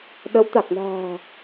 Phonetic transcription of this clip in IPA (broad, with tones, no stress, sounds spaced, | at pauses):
ɗ ə˨˦ w t̪ a˨˩ k̚ n a̤ː˨˩